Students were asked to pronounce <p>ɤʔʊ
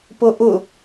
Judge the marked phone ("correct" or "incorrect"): correct